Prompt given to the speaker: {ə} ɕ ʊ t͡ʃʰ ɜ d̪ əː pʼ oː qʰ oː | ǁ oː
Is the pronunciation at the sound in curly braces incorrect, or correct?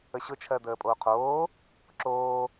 correct